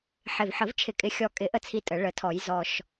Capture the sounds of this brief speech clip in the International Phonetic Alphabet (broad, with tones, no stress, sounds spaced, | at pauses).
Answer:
ħ ɪ˨˩ v ħ ə˨˩˦ v t͡ʃʰ ɪ˨˩˦ kʼ ɪ˨˩ xʲ ɔ˨˩ kʼ ɪ˨˩˦ ʔ ə˥˩ t͡sʰ i˥˩ tʼ ə˨˩˦ ɭ ə˨˩˦ tʰ ɔ˨˩˦ j z ɔ˨˩ ʃ